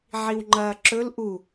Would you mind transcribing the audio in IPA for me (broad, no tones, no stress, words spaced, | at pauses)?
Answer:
ʕiwŋ͡ǃɐːǁɵl ʔu